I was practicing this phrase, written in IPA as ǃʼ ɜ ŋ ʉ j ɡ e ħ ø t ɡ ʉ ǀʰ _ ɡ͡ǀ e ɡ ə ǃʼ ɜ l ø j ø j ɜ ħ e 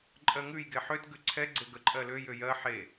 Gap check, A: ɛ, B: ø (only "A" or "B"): A